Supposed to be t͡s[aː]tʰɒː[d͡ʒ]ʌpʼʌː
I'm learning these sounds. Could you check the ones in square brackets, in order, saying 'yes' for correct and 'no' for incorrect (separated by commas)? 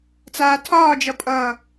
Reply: yes, yes